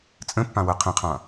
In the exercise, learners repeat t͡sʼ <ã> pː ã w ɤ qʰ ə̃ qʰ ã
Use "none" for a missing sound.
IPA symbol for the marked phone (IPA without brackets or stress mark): ə̃